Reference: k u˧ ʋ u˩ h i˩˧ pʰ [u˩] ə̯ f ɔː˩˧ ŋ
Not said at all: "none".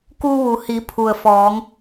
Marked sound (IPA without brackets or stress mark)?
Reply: u˩